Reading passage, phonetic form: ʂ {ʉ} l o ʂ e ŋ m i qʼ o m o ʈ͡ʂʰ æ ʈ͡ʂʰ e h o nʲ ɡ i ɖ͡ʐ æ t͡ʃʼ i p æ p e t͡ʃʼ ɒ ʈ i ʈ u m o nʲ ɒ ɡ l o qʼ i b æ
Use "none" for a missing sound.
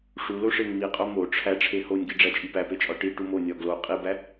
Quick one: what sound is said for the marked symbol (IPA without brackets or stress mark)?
u